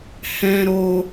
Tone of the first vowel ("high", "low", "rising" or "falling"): low